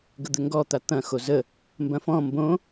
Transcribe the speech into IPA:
ɡəd̪ɘŋɡɔt̪a t̪ɐ̃ xozə | mbɐ̃fɔ̃ mbõ

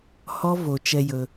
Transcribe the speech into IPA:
hɔ˧ vo˧t͡ʃɛ˦jɵ˧

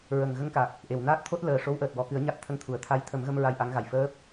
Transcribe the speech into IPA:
ɹə˨˩ŋ ɣə˧ŋka˨˩k̚ | ʔe˨˩˨wnaː˦˥t̚ t̪ʰo˦˥t̚ ləː˨˩ʂo˧˥wʔəː˨˩t̚ wɔ˨˩˨kɨ˨˩˦ə̯ ɲa˦˥t̚t̪ʰə˧ŋt̪ʰu˨˩ə̯ t̪ʰa˧˥jt̪ʰə˨˩˦mɣə˧m ɹa˧jʔa˧˥ŋɣa˨˩j fəː˦˥p̚

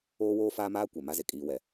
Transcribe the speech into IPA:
oː˦woː˦faː˦maː˦ kʷɛ˨ ma˦ze˨ kʼiː˦wɛ˦

